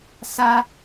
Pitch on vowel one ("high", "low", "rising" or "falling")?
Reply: high